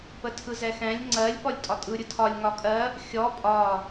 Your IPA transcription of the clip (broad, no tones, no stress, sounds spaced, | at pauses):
p ə tʰ ɯ z ɛ x ɛ̃ lʲ ŋ͡ǀ ɜ lʲ p ɔ lʲ tʼ ɒ tʼ ɯ ɾʲ ɯ tʰ ɒ lʲ ŋ ɒ kʼ ɜ | xʲ ɔ pʼ ɒ